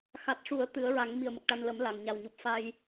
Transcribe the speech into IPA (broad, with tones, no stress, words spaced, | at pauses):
xa˨˩t̚ʂu˨˩˦ə̯ t̪ɨ˨˩˦ə̯ɹa˨˩˦ŋ mi˨˩ə̯mə˨˩k̚ʈa˧nlə˨˩˦m la˨˩ŋɲa˨˩wɲu˨˩p̚ fa˧j